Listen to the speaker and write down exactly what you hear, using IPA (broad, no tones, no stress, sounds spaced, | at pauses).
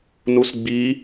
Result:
n u s ɡ͡b i